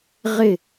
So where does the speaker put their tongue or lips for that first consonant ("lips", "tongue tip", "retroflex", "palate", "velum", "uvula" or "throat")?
uvula